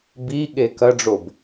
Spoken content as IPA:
biɠe kɐɖ͡ʐob

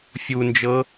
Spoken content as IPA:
fʲund͡ʒɤ

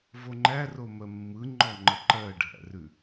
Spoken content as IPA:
voŋ͡ǃæ romɜmːɯ ŋ͡ǃɔŋ͡ǃəǃɜ ɖʱæ̰rʉ

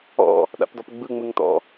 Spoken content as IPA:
ɔ̰ | ɗa̰pdɔpɡ͡bɯ ŋ͡mɯŋtɔ̰

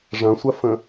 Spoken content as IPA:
ʐɐ̃sʷɐfə̃

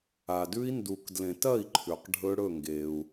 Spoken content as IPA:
a˩dʉ˦˥i̯ndu˨˩˦kdlẽ˨˩˦t ɐ˥˩i̯ǃʰʉ˩q ɖʱɵ˦˥ɽɵ˥˩ŋɡe˩u̯

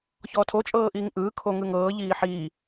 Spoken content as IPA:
çɔːtʰo t͡ʃʼɤːʔiːŋʔɯː kʰoŋɯŋɤː ʎiːħiː

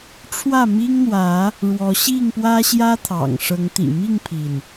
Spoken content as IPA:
ʈ͡ʂʰwä˥˨ mi˦ŋn̪wä˨˦ | ɻwɔ˨˦ɕi˥˨ŋpwä˦ ɕjä˦t̪ʰɑ̰˨˩ŋ ʂɤ˨˦ŋ t̪ḭ˨˩mi˥˨ŋpʰi˩n

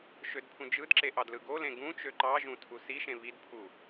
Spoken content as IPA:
ʃødpʰũd͡ʒɯdǁe ʔɑdlɯɡolẽ ɡũt͡ʃø ǃɑʒũ tʰusiʃẽ βidpʰu

